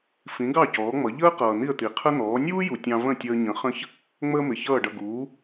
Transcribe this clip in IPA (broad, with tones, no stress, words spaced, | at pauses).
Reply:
fĩ˩˥ɡɑ˥˩ cɔː˩˥ŋ͡mʌ˩˥ ʎəː˥qʌː˩ n̪i˥˩ə̯t̪i˩qʰə˥n̪ɔː˩˥ nʲuː˥ju˩ tʲɑ̃˧və̃˥˩tʲəː˧ɲə̃˩˥ χə̃˥ç | ŋ͡məː˥mɪ˩çʌː˥˩ɖʌ˥˩ ɡuː˩˥